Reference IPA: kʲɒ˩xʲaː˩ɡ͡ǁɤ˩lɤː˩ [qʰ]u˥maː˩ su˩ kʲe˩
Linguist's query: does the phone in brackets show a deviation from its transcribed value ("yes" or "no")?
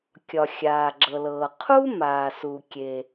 no